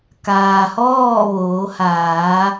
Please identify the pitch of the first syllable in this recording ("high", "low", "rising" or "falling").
low